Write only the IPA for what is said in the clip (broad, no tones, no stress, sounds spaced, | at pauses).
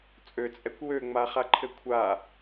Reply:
t͡sʼ ø t͡sʼ ɛ kʷ w ø ŋ͡m a χ a ǃʰ ɘ kʷʰ a